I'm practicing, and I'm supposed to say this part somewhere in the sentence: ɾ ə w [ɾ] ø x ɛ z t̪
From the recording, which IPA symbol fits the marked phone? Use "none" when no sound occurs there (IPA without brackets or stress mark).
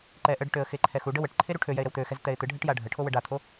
t̪